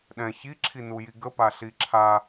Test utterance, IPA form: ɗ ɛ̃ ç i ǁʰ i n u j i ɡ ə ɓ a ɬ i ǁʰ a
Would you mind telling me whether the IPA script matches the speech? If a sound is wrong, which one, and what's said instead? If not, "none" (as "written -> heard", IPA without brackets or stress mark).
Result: ɓ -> p